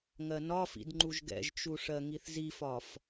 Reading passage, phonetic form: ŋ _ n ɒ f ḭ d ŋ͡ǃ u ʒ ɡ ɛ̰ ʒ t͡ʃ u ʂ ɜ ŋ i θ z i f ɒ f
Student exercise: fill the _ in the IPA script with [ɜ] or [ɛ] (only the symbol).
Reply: ɜ